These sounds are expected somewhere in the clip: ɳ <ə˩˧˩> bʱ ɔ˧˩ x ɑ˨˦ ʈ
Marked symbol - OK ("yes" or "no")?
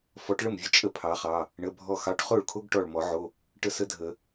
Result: yes